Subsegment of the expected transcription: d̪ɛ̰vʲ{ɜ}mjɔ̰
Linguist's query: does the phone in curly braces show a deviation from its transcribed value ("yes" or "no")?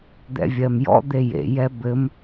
no